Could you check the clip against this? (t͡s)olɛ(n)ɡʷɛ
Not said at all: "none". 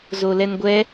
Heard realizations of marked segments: z, n

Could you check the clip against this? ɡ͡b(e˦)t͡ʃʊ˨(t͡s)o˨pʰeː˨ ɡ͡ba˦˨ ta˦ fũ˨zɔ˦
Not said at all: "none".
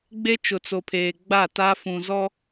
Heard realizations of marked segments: e˦, t͡s

